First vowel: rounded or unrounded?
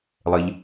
unrounded